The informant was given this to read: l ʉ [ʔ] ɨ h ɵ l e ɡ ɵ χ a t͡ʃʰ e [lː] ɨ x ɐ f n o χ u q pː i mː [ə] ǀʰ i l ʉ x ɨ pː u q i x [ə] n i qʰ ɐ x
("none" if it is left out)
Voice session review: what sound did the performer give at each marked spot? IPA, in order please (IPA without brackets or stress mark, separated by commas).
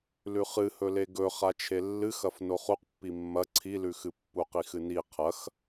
χ, lː, ɐ, ɨ